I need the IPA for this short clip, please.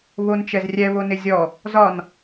βont͡ʃɛzrʲɛ βonɪzʲɔ | zɒn

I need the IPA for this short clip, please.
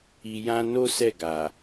i˨jã˧ no˦ sɛ˦˨ɡa˨

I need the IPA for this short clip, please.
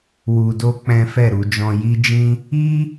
wu˧do˦ k͡pɛ̃˦ fɛ˦˨ ɾu˧d͡ʒɔ̃˧ji˦d͡ʒĩ˦ | i˦

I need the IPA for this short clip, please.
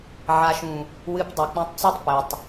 ʕa˨ʃũ˨ | wɨ˧p dˤɛ˨k͡pũ˧tˤt͡so˦tˤ pɘ˨tˤ

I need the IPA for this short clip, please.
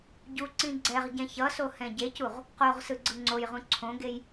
ɟu ǀĩɡ͡ǀɛʁɟɛ̃ çʌso hɛ̃ɟecuʁ | qoʁsɯ ɡ͡ǀɯŋ͡ǀojʁũ ǀʰõɡej

